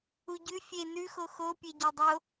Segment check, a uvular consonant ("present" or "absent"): absent